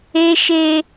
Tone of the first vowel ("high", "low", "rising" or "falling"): high